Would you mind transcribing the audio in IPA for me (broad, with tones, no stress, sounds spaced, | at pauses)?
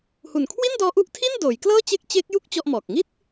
h u˨˩ n kʰ w i˥˩ n d ɔː˦˥ ʔ u˦˥ ʔ tʰ i˥˩ n d oː˩˦ j k l ɤː˥˩ t͡ɕ e˦˥ k̚ t͡ɕ e˦˥ k̚ j u˥˩ k̚ t͡ɕ ɔ˥˩ ʔ m ɔː˨˩ k̚ ŋ i˥˩ t̚